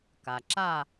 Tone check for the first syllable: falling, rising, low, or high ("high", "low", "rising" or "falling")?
low